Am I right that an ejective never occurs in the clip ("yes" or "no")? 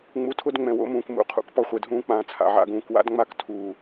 yes